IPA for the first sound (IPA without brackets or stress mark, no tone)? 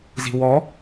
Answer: z